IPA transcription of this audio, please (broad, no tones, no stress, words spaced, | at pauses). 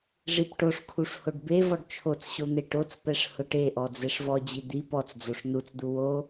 ʐipʈoʂkʰuʂ hoɖbevɔɖ t͡ʃʰot͡sɕo n̪eʈot͡spɛʂ hʊʈeʔɔ d͡zeʂvɔd͡ʑi d̪i pɔt͡sd͡zoʂ nut͡sd̪u wo